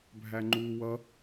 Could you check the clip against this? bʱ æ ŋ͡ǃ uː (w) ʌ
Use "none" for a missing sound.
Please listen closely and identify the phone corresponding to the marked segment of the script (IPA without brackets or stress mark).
w